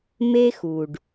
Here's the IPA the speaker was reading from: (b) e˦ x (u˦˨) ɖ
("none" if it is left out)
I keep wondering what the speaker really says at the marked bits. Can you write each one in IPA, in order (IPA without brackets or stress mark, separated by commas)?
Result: m, u˨